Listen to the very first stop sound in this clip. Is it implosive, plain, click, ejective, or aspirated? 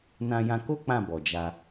plain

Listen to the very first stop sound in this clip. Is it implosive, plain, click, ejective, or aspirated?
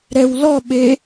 implosive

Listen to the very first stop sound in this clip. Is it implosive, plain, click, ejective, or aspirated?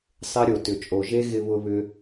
plain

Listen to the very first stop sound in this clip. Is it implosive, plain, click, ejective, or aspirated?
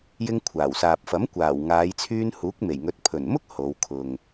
aspirated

